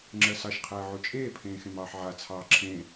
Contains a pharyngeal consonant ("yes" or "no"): yes